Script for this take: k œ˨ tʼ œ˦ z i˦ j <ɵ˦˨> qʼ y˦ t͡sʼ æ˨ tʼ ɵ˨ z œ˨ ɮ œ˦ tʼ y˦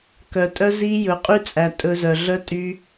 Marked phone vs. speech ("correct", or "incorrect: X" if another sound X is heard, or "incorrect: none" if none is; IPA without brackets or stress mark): incorrect: ɵ˨˦